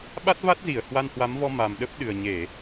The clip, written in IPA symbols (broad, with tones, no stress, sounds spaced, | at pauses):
ɓ a˦˥ t̚ v a˦˥ t̚ z i˧˩ ə̯ h w a˧ n h w a˨˦ m v ɔ˧ m a˨˩ m ɗ ə˦˥ p̚ ɗ ɨ˨˩ ə̯ ɲ e˧˩˨